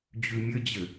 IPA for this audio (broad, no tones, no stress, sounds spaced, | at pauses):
d͡ʑ ʉ mʲ ɘ d͡ʑ ɘ